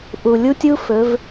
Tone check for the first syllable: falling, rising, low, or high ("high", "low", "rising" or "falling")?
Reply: low